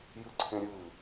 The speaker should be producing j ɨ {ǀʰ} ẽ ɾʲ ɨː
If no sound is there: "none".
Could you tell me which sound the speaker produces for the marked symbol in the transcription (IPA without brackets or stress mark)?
ǀʰ